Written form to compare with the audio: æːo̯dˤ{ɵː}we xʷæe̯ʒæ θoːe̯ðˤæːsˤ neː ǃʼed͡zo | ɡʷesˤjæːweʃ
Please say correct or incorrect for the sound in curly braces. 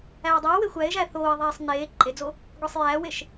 incorrect